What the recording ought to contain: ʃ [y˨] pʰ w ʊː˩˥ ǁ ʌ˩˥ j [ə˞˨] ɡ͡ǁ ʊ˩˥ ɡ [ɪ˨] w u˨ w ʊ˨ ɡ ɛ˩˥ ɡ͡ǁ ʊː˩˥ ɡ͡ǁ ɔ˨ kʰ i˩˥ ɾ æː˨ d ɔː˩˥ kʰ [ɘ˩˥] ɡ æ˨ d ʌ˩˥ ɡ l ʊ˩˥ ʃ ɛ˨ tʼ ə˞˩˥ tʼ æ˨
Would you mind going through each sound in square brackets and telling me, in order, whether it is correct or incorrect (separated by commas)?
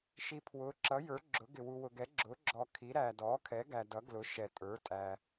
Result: incorrect, incorrect, correct, incorrect